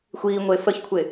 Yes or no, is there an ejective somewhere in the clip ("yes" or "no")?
no